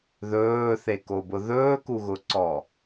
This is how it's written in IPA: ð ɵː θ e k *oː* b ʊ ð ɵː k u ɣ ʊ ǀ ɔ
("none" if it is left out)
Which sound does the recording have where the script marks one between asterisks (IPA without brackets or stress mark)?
o